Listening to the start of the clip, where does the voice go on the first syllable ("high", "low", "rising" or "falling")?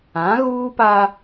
rising